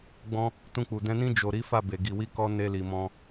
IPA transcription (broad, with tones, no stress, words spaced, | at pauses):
ɡ͡bɔ̃˦ | tũ˧k͡pu˨ dɛ̃˧nĩ˦ d͡ʒo˧ ɾi˦fa˦˨be˨ ɡi˨wi˧ kɔ˧ ne˧li˨mɔ̃˧